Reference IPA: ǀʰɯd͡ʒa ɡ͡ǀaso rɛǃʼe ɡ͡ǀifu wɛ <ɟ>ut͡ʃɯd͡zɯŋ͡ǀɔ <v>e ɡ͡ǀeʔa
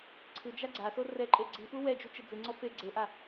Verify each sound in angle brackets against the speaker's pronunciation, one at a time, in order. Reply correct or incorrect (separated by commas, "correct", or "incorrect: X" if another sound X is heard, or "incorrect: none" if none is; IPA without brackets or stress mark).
incorrect: d͡ʒ, incorrect: f